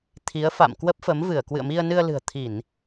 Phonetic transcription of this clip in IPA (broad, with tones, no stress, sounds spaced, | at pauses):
t̪ʰ i˨˦ ə̯ f a̰˧˨ m k w ə˦˥ p̚ f ə˨˦ m v ɨ˧˩ ə̯ k w ɨ̰˧˨ ə̯ m i˧ ə̯ n ɨ˧ ə̯ l ɨ̤˨˩ ə̯ t̪ʰ i˧˩˨ n